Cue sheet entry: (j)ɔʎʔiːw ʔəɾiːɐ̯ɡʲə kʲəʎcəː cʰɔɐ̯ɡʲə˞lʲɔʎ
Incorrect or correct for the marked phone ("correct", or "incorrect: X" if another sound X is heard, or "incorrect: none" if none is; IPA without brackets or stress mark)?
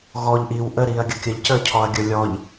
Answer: incorrect: ɣ